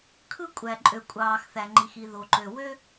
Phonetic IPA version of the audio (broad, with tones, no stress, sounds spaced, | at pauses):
kʰ ɯ˥ kʷʼ æ˩ ǃʼ ø˩ kʷʼ ɑː˩ x θ æ˩ ŋ͡ǃ i˩ x i˩ ð o˩ ǃ ø˩ w ø˥